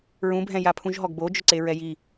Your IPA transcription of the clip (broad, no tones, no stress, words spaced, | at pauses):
ɹũbʱɛ̃ japʰũʒɦɔɡbo d͡ʒʊǀeɹɛji